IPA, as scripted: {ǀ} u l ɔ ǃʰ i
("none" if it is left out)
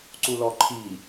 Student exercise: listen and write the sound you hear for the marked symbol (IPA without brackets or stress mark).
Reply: ǀ